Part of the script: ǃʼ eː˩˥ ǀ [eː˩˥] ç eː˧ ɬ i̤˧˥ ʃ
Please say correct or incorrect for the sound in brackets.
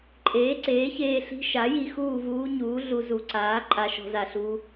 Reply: correct